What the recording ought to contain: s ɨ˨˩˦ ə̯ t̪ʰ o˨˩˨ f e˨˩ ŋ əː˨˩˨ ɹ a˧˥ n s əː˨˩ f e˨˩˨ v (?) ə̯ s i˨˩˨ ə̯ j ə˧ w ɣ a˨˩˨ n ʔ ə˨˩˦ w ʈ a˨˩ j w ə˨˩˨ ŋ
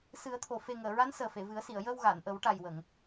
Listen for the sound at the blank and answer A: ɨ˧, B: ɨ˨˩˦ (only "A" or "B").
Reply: B